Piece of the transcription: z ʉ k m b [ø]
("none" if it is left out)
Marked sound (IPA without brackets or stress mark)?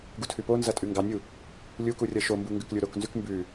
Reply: ʉ